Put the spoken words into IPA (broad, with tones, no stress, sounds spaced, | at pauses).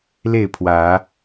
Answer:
l e˥˨ ɪ̯ pʰ w ä˨˦